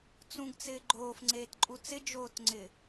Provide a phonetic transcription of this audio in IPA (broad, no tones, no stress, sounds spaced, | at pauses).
t͡s ũ ɡ t͡s ɪː ɡ͡ǃ oː f ŋ͡ǀ eː t ǃʼ u t͡s ɪ d͡ʒ oː t ŋ͡ǀ ɪ